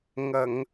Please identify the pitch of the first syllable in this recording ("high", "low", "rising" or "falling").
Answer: low